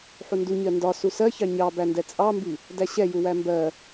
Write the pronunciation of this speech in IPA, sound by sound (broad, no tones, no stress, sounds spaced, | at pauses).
ħ u n d u ɲ ɜ n d ɒ s u s ɜ ç ɑ ɲ ɑ b æ n d ɛ t͡sʼ ɑ m b i | d æ ɕ ɛ j u w æ m b ɜ